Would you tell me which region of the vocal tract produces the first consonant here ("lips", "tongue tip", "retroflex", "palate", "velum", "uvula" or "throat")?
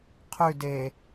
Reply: uvula